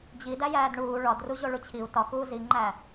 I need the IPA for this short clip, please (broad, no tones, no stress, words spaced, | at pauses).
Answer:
d͡ʑi dæjæːdɳuː ɭɒdru ʑoɭut͡ɕʰiu̯ tɒkuː ziŋ͡ǃæ